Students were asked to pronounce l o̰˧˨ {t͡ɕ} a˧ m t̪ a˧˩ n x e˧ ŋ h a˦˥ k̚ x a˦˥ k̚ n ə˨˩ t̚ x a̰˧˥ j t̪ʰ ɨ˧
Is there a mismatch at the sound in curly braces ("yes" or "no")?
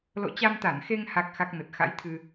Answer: no